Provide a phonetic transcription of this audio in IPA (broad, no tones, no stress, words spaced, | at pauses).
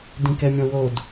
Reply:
dĩkɛmʲɔ̃wod